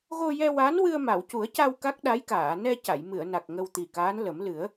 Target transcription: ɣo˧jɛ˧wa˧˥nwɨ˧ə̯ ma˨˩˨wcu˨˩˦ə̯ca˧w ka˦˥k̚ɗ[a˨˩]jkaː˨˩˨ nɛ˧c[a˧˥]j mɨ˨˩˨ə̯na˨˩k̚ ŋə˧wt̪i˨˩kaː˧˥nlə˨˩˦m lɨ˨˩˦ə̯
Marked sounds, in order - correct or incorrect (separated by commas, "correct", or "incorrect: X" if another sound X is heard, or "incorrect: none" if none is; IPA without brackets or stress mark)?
incorrect: a˧˥, incorrect: a˨˩˨